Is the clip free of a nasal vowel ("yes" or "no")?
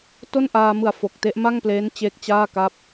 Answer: yes